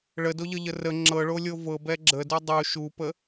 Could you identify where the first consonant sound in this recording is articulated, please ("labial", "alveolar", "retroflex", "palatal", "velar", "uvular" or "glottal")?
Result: retroflex